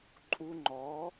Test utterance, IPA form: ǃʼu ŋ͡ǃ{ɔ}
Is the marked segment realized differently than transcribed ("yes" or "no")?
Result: no